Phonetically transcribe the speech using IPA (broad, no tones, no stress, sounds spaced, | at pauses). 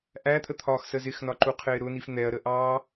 ʔ æ t̪ʰ ə t̪ʰ ɒː x s ə z ɪ x n ɒ ǃ u qʰ ɪː ɾ ʊ n i f n̪ ɛ ɐ̯ ɾ ə ʔ ɑː